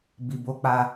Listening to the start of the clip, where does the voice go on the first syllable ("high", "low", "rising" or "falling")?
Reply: low